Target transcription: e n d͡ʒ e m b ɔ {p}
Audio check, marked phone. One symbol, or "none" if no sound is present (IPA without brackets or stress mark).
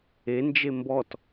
t